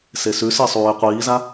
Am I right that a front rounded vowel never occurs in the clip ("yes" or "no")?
yes